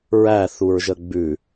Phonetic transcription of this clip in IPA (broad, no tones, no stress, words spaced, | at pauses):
ɹæθuɹʒə ɡ͡bʉ